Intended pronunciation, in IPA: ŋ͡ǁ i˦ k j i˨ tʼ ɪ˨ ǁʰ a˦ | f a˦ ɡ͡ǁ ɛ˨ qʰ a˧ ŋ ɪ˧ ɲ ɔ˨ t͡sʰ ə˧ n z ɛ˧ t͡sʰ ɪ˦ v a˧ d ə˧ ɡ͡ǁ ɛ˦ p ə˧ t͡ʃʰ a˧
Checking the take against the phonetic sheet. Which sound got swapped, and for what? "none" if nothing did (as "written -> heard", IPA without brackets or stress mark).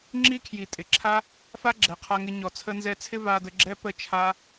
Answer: k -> kʰ